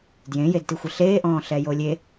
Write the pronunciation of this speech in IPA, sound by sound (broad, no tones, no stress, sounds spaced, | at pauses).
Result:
d j ẽ j e d t i xʷ ɪ ɬ eː ʔ ɔ̃ː ɬ ɛ j o lʲ e